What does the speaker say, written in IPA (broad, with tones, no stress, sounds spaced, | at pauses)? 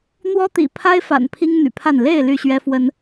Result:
n̪ w ɔ˦ t̪ ḭ˨˩ pʰ a˦ ɪ̯ f a̰˨˩ n pʰ i˦ ŋ n̪ y̰˨˩ pʰ a˥˨ n l e˥˨ ɪ̯ l y˥˨ ɕ ɥ ɛ˦ f w ə˦ n